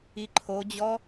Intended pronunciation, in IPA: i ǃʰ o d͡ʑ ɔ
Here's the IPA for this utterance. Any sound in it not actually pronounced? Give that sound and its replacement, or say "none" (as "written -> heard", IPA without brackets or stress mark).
none